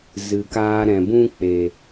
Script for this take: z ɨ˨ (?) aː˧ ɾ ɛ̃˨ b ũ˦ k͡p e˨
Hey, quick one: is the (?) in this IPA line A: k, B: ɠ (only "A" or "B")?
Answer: A